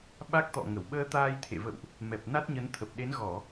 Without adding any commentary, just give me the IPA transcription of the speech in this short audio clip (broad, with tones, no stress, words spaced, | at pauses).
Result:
ɓa˦˥k̚t̪ɔ̰˧˨ŋə˧˩w ɓəː˧t̪aː˧jt̪ʰḛ˧˨və̰˧˨wʔ | mɛ˨˩p̚na˦˥t̚ɲə˨˦nt̪ʰə˨˩p̚ ɗe˨˦nɣɔ˧˩˨